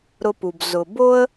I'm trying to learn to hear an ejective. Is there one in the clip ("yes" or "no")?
no